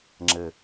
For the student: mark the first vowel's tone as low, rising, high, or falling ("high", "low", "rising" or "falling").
low